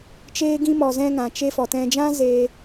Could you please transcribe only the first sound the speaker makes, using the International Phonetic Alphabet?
t͡ʃ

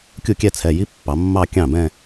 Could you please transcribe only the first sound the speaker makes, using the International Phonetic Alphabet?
kʲ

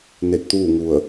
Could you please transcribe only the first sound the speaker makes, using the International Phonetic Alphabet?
n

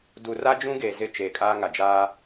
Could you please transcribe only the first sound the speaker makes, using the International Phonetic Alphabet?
d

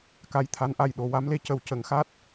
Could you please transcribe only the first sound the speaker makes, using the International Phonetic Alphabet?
k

